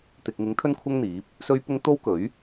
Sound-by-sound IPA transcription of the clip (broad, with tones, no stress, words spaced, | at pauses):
t̪ɪ˨k̚ŋɪ˨˥ŋ t̪ʰɵ˥nkʷʰɐ˥ŋn̪iː˨˥p̚ | sɵ˧ɥpʊ˧ŋ t̪o˥wkɵ˨˥ɥ